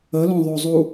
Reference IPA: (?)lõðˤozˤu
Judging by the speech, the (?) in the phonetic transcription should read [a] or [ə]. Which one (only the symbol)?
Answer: ə